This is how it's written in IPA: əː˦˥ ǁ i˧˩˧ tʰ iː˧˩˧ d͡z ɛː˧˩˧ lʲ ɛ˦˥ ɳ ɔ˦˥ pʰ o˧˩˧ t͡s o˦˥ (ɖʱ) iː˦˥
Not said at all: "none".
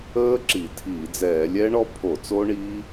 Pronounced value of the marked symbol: ɳ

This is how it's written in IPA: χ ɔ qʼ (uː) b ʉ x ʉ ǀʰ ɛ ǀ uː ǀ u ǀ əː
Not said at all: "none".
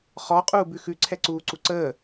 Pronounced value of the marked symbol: uː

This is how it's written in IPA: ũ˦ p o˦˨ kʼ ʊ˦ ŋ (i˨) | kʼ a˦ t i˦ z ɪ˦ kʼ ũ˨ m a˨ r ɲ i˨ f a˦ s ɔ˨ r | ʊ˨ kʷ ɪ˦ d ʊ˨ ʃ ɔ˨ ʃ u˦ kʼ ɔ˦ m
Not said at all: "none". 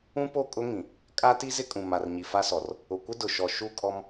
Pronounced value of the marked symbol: ĩ˨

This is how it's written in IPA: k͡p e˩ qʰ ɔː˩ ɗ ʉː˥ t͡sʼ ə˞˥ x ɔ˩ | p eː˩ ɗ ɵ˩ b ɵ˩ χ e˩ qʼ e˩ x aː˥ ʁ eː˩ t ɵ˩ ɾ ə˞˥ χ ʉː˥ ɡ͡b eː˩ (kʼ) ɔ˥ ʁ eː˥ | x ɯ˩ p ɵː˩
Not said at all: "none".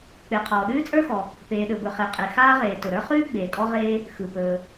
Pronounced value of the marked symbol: kʼ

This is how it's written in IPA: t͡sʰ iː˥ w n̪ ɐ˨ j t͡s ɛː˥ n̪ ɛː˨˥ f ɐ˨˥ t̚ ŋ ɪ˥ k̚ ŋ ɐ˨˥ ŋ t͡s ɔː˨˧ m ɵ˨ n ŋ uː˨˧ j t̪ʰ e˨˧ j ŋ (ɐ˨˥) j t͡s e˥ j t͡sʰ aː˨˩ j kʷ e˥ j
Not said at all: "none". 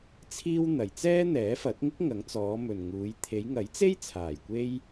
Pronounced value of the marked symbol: ɐ˨˥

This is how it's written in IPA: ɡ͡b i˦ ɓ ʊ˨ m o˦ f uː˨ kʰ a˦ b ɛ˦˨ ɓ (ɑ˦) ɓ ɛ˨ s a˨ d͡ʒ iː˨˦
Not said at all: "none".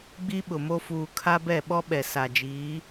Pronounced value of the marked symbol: ɔ˦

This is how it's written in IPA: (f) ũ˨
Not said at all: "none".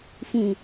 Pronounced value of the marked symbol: f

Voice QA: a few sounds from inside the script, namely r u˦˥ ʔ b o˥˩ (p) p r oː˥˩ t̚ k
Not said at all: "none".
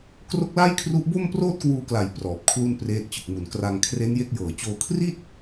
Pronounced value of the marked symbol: m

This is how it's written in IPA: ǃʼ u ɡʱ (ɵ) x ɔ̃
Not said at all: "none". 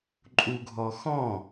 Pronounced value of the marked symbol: ɔ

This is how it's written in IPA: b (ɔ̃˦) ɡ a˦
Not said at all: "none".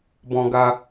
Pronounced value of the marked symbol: ɔ̃˦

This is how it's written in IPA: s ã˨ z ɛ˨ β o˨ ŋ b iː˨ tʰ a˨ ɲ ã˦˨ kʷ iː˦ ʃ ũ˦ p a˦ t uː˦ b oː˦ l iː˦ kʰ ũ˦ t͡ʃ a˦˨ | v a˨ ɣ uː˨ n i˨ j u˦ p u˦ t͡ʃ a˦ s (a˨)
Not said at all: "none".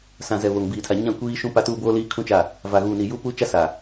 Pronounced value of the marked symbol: a˨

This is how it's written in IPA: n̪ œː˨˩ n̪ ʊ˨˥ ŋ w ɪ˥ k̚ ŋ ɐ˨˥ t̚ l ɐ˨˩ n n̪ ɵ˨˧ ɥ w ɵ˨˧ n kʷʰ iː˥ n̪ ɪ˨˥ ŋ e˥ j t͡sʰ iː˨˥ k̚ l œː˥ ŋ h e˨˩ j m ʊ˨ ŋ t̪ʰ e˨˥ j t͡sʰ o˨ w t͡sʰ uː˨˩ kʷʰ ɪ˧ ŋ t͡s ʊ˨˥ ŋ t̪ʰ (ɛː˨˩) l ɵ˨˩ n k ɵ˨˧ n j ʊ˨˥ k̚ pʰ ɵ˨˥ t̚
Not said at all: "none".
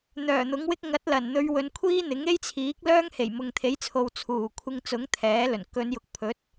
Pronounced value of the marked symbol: ɛː˨˥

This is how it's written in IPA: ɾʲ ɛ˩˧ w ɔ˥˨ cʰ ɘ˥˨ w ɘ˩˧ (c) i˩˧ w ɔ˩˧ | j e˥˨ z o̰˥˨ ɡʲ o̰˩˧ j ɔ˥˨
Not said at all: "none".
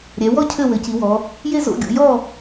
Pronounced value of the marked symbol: c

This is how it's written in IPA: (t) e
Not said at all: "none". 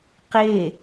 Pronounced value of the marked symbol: q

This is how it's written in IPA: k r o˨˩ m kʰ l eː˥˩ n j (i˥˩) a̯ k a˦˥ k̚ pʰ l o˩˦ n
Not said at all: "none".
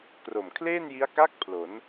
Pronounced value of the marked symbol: i˦˥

